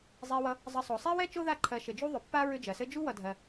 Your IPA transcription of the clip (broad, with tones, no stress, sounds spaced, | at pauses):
zˤ e˨ w ʌ˨ | zˤ ɘ˨ sˤ o˩ sˤ e˥ w ɛ˥ t͡ʃ o˥ ð a˦ ǃʰ ɜ˨ ʃ ɘ˩ d͡ʒ u˥ ðˤ ʏ˩ pː a˦ ɹ ʏ˦ d͡ʒ ɜ˩ s ɘ˥ d͡ʒ u˥ w ʌ˨ dʱ ɜ˨